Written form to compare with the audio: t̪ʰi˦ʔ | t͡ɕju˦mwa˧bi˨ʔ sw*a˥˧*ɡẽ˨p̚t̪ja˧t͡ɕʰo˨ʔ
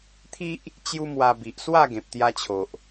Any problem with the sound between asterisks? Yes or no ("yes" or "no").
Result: no